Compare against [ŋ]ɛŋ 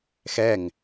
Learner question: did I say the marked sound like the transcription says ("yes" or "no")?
no